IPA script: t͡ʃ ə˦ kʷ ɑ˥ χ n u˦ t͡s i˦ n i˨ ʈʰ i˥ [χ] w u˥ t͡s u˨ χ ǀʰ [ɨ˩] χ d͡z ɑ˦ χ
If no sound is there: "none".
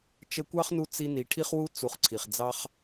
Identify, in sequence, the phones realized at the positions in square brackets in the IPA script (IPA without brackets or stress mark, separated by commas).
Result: χ, i˩